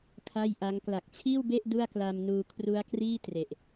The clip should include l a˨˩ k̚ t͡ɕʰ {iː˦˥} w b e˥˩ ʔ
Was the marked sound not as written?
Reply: yes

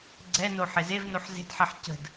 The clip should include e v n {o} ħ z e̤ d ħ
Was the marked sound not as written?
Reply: no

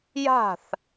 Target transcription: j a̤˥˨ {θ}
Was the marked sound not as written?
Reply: no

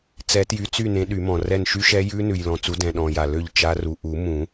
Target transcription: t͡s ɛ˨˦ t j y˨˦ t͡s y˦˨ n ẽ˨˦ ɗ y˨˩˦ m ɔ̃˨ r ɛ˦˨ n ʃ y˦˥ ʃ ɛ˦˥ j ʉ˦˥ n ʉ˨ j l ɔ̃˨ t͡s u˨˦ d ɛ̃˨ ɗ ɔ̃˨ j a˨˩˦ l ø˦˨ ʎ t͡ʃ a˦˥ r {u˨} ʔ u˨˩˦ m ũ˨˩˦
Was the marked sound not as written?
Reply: no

